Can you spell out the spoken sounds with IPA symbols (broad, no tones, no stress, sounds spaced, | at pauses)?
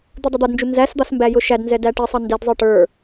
d̪ u dˤ ʌ d̪ ʌ d n d͡ʒ u n z æ s d̪ ɑ s m b æ j ʊ ʃ æ d n z ɛ d æ ʈ ɪ sˤ ʌ n d ɛ d zˤ ə˞ ʈ ə˞